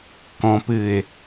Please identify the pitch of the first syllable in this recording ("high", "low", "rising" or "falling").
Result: low